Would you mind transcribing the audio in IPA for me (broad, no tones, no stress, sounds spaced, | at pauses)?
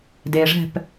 d e ʐ ɛ̤ p